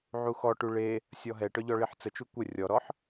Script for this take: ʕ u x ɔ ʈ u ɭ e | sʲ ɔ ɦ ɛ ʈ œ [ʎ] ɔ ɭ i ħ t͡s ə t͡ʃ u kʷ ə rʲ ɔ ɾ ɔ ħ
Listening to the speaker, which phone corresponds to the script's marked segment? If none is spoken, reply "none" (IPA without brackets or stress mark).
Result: ʎ